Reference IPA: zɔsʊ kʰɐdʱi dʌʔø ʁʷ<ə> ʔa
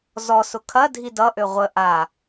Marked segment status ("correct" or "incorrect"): correct